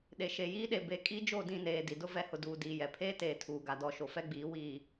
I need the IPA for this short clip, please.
ɗe˨ʃe˨jiː˦ɗe˨ be˨ kʼi˦ d͡ʒo˦˨dĩ˦˨neː˨ di˨dʊ˦ vɛ˨˦hʊ˨duː˨ diː˨jɛ˨ pʰeː˦teː˨ tʰuː˨ɡa˨dɔ˦˨ʃo˨ fɛ˦ɡ͡biː˨˦ wiː˨

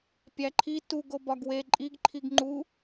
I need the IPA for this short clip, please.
pʲæǃʰi tuɡ obɒɡwe ǃʼiɡ ǃʰiɡŋ͡ǃu

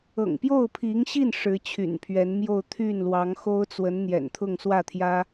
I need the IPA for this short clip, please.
ɤ̰˨˩ŋpjo˥˩ʊ̯pʰi˧˥ŋɕi˥˩n ʂɻ̩˧˥t͡ɕʰy̰˨˩npʰɥɛ˧˥nmjo˥˧ʊ̯ t̪ʰy˥˩nlwɑ˧˥ŋ xo˥ʊ̯t͡swə˧˥n n̪jɛ̰˨˩nt̪ʰʊ˥˧ŋ swä˥˩t̪ʰjä˥

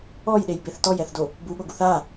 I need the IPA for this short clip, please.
ɔjɗejbeθ tɔjɛθdo | buɠoɡuθ a

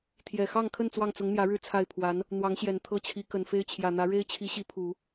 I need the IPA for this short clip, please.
t̪ʰjɛ˨˩xɑ˥˧ŋkʰə˥˧n t͡swɑ˥˩ŋt͡sʊ˧˥ŋn̪jä˧˥ɻɻ̩˥˧ t͡sʰa˥˩ɪ̯pʰwa˧˥n | n̪wɑ˧˥ŋɕjɛ˨˩n t̪ʰɤ˥t͡ɕʰi˧˥ kə˨˩nfe˥ɪ̯t͡ɕʰjä˨˩n̪ä˧˥ ɻe˥ɪ̯t͡ɕʰi˧˥ɕi˧˥ pʰu˨˩˦

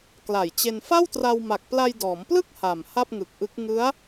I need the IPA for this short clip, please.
kla˨˩jt͡ɕe˧n fa˥˩wtra˧wma˨˩k̚ pla˧jdɔː˩˦mplɯ˥˩k̚ ha˨˩mha˥˩p̚ŋɯ˨˩k̚ʔɯ˦˥k̚ ŋɯ˦˥a̯

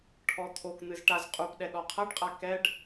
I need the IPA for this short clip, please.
ʈʰɔt̪ʰokn̪ɨz ʈaz qʼup ɗɛɗɔqʰɐɖqʼa kɛɖ

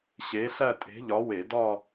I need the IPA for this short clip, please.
ɕe˨˥ɬæ˥˧tʼe̤˨˥ʎɒ˨˥ we˧˩˧dɒ˥˧

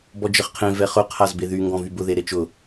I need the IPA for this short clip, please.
bɔd͡ʒəχqʰẽ vɛχʊ qʰazbeðy ŋɡɔ̃vybʊ ðeɾet͡ʃʊ

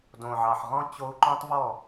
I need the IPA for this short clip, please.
dõ˨ʕɑ˨ħʁɔ̃˦ t͡ɕo˦u̯ ǃõ˦tˤvɔ˦˨

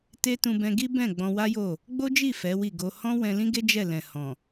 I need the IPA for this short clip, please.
te˦ tũ˧bɛ̃˧ɡi˦ bɛ̃˦˨ ɡ͡bɔ̃˧wa˦jo˦˨ | ɡ͡bo˦d͡ʒi˦˨ fɛ˨˦wi˦˨ɡo˧ hɔ̃˦wɛ̃˧lĩ˦ɡe˦ d͡ʒɛ˦˨lɛ̃˨ hɔ̃˨

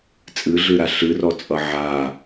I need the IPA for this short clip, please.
t͡sʼɨɮɨɾa ɬɨrɔt͡sʼʌ ʕa

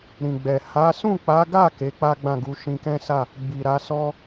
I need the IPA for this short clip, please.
ɾĩ˨ɡ͡bɛ˨ ha˨˦ sũ˦˨k͡pa˨˦ɡa˦˨ ke˨˦k͡pa˦ɡ͡bã˦˨ɡu˧ ʃĩ˧kɛ̃˦sa˦˨ | ɡ͡bi˨ɾa˨˦sɔ˦

